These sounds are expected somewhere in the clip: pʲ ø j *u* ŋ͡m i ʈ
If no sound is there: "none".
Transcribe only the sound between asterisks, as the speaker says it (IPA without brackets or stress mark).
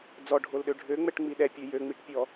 ø